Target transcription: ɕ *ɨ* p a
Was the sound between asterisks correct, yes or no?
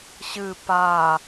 yes